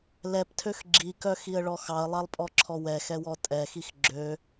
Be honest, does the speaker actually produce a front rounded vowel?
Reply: yes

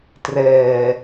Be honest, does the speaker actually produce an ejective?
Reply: no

